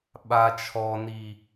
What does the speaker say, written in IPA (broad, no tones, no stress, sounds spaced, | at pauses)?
ɓ a t͡ʃʰ ɔ n i